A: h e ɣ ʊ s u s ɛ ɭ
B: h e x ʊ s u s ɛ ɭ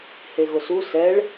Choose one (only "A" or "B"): A